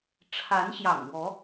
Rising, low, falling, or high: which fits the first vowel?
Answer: rising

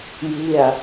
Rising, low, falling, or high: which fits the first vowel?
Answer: falling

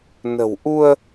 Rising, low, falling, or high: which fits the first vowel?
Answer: low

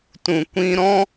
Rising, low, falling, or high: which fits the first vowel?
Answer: low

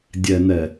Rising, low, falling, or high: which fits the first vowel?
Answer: low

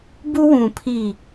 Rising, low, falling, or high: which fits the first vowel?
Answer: high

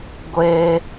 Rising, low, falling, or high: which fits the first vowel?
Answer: high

